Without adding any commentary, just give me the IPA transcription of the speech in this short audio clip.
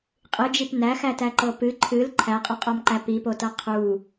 qʼ ɨ d͡ʒ i p n æ x æ t æ ǃ ɤ p ɨ ǃʰ ɨ l ǃʰ æ qʼ ɔ qʼ ɒ m ǃ æ p i p o t ɤ qʰ u

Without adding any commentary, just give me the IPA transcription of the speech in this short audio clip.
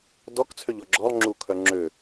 d ɔ k t͡sʰ ø ʎ ɔ ɡ͡ǁ ɔ lˠ ŋ͡ǁ u kʰ œ ŋ͡ǁ ø

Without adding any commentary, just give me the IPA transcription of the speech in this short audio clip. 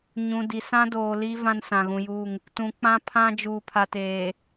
ɲ ũ˨ d i˨ s ã˦ d oː˨ l i˦ v ã˦ n s ã˨ ɣ ũ˨ j uː˦˨ ŋ | t ũ˨ k͡p ã˦ pʰ ã˦ d͡ʒ uː˨ pʰ a˨ t eː˨

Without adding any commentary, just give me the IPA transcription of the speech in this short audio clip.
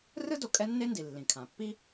r ɯ˥ d o˩ kʼ ɛ˥ nː e˥ n d i˩ lː ĩ˩ kʰ ã˩ pː i˥

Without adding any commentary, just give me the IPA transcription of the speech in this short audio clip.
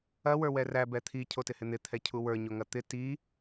ɐ w ə˞ w ɛ r æ b ɛ t̪ʰ i cʰ o t ɪ h ɪ n̪ ɪ t̪ʰ ɛ cʰ u w ə˞ ɲ o ŋ ɐ t̪ ɪ t i

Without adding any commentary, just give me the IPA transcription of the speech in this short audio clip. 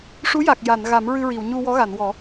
ʂ u˧˥ j a˨˩ k̚ j a˨˩˨ n ɣ a˨˩˦ m ɹ ɨ˧ ɹ i˨˩˨ w ɲ u˧ w ɔ˧˥ ɣ a˨˩˨ n w ɔ˨˩˦

